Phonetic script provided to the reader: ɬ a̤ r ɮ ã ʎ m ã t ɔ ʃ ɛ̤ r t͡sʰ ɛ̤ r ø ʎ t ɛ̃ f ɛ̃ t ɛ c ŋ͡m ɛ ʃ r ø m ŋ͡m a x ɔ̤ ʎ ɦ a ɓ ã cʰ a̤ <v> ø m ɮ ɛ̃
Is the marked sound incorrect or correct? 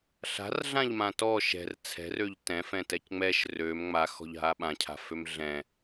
incorrect